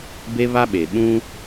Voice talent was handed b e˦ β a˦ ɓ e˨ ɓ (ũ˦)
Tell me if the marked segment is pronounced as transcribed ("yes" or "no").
yes